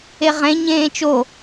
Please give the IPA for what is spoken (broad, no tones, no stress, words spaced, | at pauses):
eʁẽ ɲẽːt͡ʃo